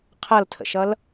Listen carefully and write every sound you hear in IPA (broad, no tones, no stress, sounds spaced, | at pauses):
qʰ ʌ l tʰ ə̰ ʃ ʌ l